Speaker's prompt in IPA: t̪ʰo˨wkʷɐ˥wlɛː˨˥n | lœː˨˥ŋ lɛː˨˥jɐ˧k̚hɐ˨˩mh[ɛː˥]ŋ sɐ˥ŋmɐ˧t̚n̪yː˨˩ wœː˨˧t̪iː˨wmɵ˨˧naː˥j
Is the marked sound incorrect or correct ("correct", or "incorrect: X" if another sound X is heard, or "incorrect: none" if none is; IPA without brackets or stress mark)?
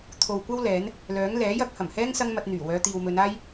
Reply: correct